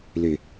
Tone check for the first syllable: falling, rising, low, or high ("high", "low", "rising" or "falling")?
low